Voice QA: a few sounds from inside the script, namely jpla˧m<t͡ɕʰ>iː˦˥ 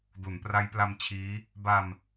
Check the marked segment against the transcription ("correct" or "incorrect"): correct